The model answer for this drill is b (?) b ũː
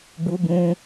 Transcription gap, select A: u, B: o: A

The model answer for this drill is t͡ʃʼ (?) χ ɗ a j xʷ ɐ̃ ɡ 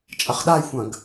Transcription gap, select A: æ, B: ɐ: B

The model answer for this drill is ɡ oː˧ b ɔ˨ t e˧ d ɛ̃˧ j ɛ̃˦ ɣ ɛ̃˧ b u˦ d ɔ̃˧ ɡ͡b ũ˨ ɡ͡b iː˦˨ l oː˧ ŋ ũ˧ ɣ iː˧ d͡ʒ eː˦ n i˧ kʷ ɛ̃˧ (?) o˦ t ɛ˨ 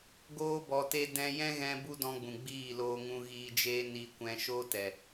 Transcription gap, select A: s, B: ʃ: B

